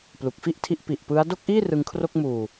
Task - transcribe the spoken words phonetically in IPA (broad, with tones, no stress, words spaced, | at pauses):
plu˨˩k̚fi˥˩ʔtʰi˦˥ʔ pi˨˩ʔpɯ˦˥a̯ do˥˩k̚ʔiː˥˩ rɯ˧ŋkʰro˥˩k̚ muː˨˩